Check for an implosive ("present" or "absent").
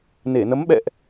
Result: present